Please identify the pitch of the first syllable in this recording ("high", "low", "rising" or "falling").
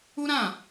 high